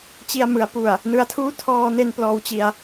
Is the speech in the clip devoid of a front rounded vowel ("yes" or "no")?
yes